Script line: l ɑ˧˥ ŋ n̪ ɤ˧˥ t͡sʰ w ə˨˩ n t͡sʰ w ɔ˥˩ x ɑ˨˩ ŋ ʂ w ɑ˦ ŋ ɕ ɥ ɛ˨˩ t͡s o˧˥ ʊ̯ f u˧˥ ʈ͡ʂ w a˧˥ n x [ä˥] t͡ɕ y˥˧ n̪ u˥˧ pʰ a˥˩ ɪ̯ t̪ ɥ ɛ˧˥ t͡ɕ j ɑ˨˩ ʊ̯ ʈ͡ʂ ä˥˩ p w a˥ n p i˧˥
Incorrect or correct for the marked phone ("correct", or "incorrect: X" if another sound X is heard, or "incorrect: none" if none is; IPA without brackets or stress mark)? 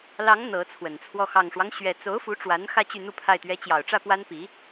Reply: incorrect: ä˥˧